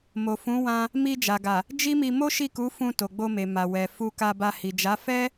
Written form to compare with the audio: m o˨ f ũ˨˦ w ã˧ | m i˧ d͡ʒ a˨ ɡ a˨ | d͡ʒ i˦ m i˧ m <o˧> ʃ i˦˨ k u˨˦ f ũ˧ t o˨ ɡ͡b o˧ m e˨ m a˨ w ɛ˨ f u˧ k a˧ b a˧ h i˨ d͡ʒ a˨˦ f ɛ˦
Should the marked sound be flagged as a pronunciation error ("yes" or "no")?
yes